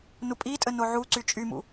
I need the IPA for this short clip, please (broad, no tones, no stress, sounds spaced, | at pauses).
n u pʼ i tʼ ə n o ʕ u ǀ y t͡ʃʼ y m ṵ